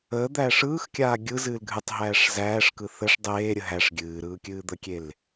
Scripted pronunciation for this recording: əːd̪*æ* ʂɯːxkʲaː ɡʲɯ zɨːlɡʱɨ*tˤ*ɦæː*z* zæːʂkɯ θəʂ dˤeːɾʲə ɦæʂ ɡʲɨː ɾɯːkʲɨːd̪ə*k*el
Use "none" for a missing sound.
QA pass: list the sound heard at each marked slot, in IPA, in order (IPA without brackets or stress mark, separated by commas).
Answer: æː, tˤ, ʂ, kʲ